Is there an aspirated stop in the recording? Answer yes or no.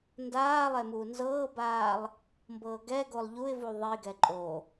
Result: no